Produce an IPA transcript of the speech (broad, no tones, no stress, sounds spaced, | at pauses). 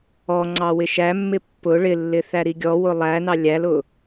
ɔ ŋ͡ǀ ɑ w ɪ ʃ æ mː ɪ pː ʊ ɭ ɪ lː ɪ θ æ ɾ i ɡʲ ɔ w ʊ lˠ æ n ɑ lʲ æ l ʊ